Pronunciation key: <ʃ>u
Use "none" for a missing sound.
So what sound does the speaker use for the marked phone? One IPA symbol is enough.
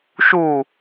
ʃ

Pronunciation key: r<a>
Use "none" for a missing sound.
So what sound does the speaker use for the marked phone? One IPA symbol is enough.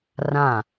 ã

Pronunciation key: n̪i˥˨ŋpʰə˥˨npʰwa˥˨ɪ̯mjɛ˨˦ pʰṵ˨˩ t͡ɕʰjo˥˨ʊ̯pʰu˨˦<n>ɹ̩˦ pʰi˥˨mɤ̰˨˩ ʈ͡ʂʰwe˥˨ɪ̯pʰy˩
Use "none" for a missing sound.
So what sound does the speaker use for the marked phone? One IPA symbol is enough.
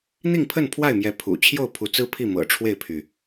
t͡s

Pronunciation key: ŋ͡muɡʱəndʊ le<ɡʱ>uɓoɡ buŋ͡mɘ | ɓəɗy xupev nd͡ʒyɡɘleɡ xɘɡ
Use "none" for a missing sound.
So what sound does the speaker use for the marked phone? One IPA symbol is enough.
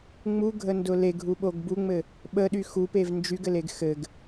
ɡʱ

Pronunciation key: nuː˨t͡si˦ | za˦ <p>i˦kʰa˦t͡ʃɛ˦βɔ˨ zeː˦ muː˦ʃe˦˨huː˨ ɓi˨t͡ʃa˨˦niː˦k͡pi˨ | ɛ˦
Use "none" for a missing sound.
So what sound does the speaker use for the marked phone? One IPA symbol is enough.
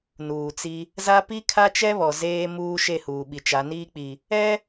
p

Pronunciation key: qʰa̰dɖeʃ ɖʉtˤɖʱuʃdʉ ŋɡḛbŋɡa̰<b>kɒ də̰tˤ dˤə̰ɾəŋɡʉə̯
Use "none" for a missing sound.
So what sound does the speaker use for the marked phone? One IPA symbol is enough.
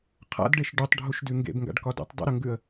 ɖ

